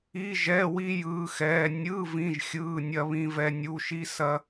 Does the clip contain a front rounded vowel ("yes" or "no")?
no